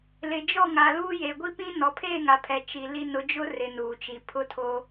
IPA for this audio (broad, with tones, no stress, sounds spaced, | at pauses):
l ɪ˨ d͡ʒ ɔ˦˨ ŋ a˨ l uː˦ j e˨ ɡʷ i˦ p ĩ˦ n ɔ˨ pʰ eː˦˨ ŋ a˨ pʰ ɛ˨ t͡ʃ i˨ l i˦ n ʊ˨˦ d͡ʒ ʊ˦ r ɪ˨ n uː˨ t͡ʃ i˨ pʰ ʊ˦ tʰ oː˦